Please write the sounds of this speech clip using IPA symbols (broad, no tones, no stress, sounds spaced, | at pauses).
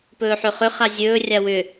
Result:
p ɵː ħ ø χ ʏ χ a zʲ ɵː rʲ a w ʏ